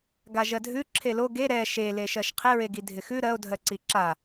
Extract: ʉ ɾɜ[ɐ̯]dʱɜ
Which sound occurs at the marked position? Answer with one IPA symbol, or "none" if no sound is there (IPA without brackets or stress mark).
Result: o̯